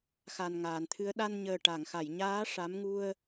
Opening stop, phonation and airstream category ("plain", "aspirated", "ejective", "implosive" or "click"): aspirated